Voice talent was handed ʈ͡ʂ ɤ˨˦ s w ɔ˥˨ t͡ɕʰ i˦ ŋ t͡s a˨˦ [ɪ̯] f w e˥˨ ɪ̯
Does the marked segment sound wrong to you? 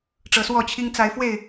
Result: no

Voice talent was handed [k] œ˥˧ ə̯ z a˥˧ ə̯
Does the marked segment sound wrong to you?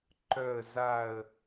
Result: yes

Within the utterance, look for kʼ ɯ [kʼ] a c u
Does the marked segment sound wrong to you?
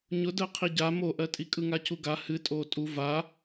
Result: yes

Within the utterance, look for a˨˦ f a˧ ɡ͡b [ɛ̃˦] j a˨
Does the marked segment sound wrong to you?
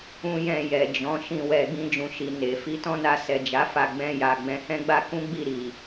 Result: yes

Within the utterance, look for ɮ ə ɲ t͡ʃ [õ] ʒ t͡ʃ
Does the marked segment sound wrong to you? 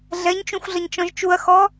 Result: yes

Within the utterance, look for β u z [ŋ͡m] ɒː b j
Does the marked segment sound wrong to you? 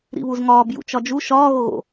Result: yes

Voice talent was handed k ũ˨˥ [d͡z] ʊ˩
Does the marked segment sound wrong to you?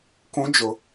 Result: yes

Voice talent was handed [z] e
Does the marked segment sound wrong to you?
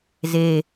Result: no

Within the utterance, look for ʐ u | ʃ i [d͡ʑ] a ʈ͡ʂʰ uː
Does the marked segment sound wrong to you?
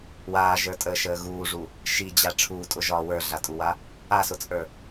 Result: no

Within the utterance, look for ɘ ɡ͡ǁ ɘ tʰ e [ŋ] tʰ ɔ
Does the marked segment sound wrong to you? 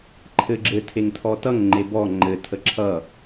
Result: no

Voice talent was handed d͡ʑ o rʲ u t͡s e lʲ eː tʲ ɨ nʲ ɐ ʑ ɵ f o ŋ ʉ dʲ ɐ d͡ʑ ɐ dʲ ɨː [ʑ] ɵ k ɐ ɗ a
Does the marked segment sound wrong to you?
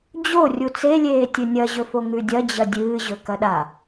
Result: no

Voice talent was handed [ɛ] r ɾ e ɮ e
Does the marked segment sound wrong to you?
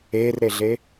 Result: yes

